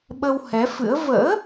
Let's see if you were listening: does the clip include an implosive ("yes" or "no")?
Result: yes